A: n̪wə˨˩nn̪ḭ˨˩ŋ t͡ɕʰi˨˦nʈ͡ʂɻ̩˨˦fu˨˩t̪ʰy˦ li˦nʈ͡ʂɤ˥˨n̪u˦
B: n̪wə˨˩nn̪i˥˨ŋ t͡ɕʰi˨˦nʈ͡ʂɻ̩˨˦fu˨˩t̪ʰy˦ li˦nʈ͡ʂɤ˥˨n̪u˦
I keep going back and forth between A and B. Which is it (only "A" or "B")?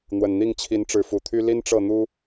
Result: B